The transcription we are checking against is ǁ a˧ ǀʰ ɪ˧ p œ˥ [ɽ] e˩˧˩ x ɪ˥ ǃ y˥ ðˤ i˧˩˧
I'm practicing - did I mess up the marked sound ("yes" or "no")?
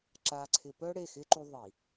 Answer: no